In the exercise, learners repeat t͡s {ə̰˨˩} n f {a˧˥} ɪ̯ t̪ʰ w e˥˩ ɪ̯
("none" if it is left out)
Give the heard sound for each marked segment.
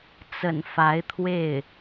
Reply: ə̰˨˩, a˧˥

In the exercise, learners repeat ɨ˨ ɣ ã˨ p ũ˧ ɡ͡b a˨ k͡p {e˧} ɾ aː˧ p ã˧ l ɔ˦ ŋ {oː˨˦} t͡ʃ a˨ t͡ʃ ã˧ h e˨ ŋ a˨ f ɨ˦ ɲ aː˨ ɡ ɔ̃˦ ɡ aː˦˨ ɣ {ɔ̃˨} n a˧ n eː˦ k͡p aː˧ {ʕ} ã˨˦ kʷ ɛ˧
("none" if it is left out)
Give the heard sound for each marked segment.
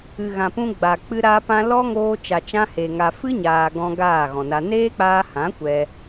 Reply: ɨ˧, oː˧, ɔ̃˨, h

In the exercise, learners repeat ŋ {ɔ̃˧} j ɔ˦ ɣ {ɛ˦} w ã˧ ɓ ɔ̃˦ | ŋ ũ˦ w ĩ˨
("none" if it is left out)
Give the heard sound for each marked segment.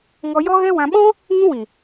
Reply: ɔ˧, ɛ˦

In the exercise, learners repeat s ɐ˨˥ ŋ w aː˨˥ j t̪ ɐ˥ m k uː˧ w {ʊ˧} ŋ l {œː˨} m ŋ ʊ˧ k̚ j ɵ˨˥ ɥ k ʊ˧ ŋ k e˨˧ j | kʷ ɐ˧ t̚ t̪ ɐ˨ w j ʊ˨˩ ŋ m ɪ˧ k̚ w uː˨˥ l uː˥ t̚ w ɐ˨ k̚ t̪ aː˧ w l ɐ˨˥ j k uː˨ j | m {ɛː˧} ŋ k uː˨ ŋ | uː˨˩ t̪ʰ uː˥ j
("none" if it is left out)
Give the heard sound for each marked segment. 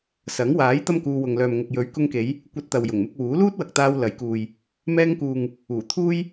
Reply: ʊ˨, œː˨, ɛː˧

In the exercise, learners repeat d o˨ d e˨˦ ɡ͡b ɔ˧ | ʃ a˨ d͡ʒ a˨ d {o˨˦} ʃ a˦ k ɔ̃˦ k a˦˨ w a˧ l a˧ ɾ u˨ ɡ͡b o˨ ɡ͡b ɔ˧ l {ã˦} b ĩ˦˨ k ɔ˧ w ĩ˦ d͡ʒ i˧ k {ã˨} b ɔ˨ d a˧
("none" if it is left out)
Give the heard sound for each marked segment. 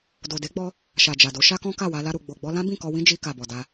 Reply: o˨˦, ã˦, a˨

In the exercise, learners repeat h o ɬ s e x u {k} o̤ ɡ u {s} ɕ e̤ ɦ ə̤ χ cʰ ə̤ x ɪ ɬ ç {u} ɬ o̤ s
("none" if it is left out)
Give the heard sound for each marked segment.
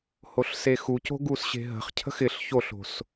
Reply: c, s, o

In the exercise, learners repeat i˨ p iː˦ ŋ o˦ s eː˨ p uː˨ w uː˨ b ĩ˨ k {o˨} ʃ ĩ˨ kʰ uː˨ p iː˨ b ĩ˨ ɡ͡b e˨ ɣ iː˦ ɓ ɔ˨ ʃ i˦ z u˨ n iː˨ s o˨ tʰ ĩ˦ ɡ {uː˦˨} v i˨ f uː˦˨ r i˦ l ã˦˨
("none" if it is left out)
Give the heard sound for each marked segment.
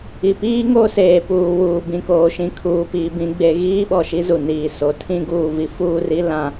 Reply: oː˨, uː˨

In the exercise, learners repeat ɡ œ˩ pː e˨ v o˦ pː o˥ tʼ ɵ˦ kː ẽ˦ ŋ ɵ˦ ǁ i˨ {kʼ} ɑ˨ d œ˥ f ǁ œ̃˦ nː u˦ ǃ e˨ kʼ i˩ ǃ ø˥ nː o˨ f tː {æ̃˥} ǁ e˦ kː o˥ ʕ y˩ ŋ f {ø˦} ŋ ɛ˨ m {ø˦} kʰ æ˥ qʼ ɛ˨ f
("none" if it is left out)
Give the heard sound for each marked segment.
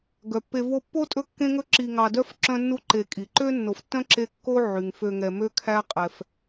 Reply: ŋ, œ̃˥, ø˨, ø˥

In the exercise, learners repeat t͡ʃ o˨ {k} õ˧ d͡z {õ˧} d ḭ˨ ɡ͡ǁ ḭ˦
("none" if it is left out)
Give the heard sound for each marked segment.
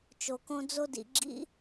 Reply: k, o˧

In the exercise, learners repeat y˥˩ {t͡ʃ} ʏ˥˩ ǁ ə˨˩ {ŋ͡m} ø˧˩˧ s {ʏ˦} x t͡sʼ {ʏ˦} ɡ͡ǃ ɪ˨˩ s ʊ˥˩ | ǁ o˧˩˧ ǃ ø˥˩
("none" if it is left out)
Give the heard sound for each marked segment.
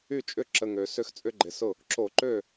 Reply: t͡ʃʼ, ŋ, ʏ˦, ʏ˦

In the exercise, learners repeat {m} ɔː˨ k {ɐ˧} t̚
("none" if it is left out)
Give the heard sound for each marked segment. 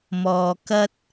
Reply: m, ɐ˧

